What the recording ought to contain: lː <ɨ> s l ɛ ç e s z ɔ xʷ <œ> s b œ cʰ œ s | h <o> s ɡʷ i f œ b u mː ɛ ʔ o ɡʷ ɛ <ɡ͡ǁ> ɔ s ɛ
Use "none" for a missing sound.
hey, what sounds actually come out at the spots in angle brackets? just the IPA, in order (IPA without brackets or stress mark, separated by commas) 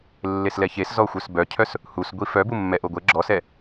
e, œ, u, ɡ͡ǁ